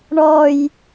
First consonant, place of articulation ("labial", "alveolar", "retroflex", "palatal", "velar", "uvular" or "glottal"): retroflex